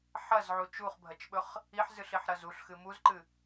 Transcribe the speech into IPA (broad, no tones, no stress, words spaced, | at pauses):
ħɐzʕu t͡ʃuχbʱɐt͡ʃɓɵχ | iħzɨɬiħɾɐz uɬxɨ muzǃɨ